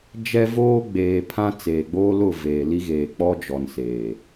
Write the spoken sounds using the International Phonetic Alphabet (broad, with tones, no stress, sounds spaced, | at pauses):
d͡ʒ ɛ˦ v oː˦ ɡ͡b eː˨ pʰ ã˦ t͡s eː˨ ɡ͡b oː˦ l ʊ˦˨ v eː˨ l i˦ ɣ eː˨ k͡p ɔ˦ d͡ʒ ɔ˨ n s eː˨